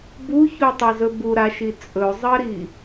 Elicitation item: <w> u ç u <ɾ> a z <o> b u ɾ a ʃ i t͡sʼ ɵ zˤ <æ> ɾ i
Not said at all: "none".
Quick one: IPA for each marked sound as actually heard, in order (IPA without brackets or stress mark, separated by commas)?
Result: b, tˤ, ɵ, ɜ